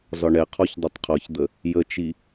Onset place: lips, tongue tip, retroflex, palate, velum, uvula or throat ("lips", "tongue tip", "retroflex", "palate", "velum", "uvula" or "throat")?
tongue tip